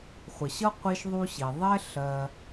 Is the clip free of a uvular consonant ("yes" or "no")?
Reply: no